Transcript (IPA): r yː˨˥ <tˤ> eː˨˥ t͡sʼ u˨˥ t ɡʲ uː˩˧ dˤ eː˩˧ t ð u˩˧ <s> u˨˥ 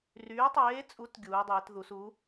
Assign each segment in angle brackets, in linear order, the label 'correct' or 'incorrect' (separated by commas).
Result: correct, correct